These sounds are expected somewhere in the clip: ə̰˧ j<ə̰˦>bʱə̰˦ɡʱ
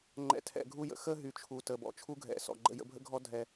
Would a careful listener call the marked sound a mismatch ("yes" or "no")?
yes